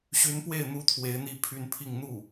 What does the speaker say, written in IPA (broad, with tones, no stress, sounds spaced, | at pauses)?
ɕ y˧˥ n p w e˥˩ ɪ̯ n̪ u˥ t̪ʰ w e˧˥ ɪ̯ n̪ i˥˧ pʰ y˥˧ n pʰ i˥˧ ŋ n̪ u˥˩